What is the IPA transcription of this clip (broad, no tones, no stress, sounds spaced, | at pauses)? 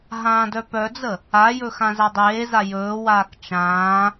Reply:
ɦ ãː d œ p œ d͡z ə | a j ɵ x ã z a dˤ eː z a j ɵː w aː k t͡ʃ ãː